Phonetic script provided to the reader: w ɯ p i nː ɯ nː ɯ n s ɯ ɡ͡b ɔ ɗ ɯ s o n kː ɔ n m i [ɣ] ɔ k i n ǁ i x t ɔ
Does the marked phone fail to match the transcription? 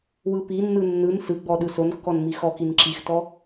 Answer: yes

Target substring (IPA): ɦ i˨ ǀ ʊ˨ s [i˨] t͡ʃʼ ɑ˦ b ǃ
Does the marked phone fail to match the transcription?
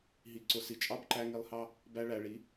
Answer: no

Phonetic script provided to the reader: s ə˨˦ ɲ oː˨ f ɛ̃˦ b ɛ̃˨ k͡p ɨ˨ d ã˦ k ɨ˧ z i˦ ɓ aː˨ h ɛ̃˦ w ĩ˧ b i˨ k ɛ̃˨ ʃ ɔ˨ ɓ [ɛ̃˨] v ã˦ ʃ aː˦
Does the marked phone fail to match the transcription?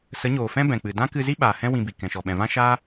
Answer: no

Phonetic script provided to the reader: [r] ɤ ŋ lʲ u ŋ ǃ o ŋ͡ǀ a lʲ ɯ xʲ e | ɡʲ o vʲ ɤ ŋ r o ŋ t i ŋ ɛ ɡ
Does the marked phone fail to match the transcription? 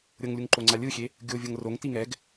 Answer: yes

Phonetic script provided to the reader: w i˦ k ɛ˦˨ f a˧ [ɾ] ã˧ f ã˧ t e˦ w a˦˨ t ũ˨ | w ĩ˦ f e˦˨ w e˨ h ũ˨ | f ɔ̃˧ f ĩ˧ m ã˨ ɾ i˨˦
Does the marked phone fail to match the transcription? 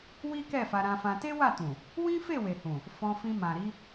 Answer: no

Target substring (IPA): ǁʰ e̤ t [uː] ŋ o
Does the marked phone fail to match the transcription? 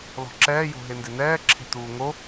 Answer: no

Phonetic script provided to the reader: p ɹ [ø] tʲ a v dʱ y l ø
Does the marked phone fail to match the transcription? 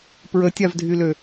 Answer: yes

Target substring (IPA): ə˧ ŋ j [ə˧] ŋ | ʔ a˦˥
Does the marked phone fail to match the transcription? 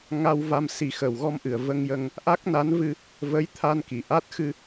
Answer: no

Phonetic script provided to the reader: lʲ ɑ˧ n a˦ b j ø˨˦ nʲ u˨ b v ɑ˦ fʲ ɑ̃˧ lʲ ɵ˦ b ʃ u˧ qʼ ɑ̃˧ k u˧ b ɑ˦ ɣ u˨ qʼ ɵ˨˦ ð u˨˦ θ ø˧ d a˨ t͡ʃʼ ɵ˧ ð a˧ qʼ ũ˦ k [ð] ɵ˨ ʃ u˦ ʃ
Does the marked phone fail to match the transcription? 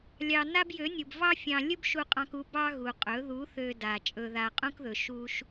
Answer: no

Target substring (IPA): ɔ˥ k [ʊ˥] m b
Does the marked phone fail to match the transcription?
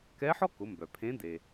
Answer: yes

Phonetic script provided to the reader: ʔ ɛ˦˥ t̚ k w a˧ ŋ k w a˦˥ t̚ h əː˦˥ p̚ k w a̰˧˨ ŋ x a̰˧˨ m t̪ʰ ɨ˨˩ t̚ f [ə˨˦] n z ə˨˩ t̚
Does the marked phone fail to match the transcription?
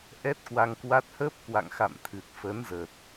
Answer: no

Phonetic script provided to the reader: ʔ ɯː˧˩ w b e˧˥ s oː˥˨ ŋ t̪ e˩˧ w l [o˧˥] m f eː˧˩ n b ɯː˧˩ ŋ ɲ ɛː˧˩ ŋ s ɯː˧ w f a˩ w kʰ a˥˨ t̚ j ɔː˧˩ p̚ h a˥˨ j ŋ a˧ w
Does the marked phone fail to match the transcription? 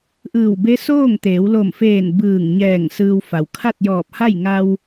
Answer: yes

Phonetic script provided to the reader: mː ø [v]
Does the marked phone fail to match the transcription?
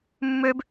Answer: yes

